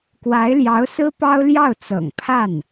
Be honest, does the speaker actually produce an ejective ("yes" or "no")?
no